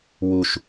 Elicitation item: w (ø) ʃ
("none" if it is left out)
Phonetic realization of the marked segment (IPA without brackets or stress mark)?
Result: u